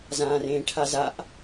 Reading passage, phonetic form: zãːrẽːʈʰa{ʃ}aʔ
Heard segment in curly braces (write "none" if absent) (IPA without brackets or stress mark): z